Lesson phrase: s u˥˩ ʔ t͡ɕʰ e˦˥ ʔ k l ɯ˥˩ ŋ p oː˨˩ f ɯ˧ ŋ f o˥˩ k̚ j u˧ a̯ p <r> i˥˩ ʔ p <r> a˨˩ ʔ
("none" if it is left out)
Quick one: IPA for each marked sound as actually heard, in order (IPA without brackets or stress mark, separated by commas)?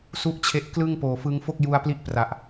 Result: l, r